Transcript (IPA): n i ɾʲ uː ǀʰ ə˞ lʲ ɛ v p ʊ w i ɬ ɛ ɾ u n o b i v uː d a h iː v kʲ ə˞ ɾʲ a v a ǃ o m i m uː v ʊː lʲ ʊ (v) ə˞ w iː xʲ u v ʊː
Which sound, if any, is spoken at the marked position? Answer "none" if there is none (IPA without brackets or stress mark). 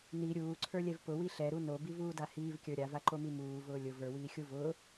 v